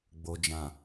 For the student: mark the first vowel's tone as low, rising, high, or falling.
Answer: low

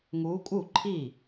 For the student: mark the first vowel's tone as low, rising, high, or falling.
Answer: rising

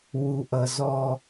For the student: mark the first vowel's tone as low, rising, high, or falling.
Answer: low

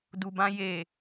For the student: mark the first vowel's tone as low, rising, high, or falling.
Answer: low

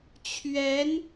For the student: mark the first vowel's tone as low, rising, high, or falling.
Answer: rising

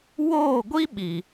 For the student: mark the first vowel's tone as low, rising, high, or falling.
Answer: falling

